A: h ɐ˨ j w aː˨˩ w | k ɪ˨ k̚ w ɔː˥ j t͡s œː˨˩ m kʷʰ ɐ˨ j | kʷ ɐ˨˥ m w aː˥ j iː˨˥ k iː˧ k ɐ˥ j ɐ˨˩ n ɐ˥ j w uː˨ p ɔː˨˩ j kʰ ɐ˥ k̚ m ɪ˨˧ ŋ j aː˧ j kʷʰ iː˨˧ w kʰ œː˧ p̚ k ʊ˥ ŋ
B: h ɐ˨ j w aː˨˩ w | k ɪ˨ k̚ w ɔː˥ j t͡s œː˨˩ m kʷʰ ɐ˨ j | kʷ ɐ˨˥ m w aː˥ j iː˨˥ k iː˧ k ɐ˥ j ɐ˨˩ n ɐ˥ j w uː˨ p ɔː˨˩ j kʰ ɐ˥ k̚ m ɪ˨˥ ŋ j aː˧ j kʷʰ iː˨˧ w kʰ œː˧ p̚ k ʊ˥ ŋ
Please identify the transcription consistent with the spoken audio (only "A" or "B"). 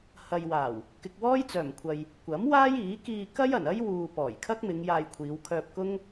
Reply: A